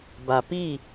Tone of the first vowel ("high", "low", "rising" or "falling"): low